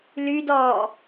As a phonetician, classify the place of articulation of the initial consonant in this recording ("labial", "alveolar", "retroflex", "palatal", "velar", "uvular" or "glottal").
alveolar